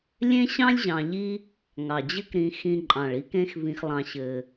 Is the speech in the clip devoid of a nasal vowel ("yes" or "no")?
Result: no